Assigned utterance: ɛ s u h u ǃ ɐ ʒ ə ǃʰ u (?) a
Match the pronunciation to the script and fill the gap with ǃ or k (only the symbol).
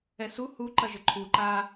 ǃ